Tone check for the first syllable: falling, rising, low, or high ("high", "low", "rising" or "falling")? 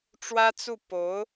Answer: high